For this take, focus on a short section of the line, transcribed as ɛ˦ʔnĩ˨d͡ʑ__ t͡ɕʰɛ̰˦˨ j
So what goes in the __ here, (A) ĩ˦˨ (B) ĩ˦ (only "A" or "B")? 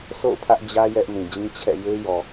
B